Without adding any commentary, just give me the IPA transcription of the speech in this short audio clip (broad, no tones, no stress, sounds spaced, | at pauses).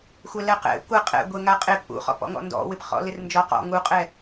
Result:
xʷ ɛ l ɛ q ɛ̰ kʷ ɛ qʼ ɛ̰ ɡʷ e ŋ a qʼ e p ʔ ṵ χ ɔ̰ p ɔ̰ ŋ ɔ̰ n d ɔ̰ w ɪ p χ ɔ̰ l ɪ r n d͡ʒ ɔ q ɔ̰ ŋ u qʼ ɛ